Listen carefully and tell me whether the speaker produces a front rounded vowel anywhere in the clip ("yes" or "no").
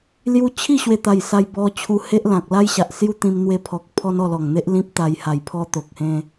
no